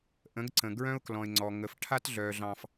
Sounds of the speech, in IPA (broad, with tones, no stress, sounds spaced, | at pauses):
ʔ ə̃˨˦ ɡ ǀ ə̃˨ ɡ ɹ œ̃˦ ʊ̯ k l ɔ̃˨ ɪ̯ ŋ͡ǀ ɔ˨ ŋ ə˨ f ʈʰ a˦ t ɮ œ˨ ɮ ɑ̃˦ f